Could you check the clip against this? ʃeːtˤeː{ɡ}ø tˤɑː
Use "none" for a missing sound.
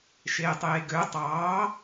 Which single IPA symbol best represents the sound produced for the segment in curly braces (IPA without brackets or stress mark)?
ɡ